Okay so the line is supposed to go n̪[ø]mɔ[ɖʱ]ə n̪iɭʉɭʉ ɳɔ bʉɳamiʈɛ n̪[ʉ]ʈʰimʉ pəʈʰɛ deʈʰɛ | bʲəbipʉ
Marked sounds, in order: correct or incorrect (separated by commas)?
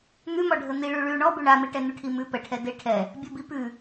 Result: incorrect, correct, correct